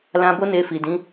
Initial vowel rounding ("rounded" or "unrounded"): unrounded